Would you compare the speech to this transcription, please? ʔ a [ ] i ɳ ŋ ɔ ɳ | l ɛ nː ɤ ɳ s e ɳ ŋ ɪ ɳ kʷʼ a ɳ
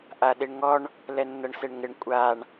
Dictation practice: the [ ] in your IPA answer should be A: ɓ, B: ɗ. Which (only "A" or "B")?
B